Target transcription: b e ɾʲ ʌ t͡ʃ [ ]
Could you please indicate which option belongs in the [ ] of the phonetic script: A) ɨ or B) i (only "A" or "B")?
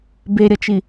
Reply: B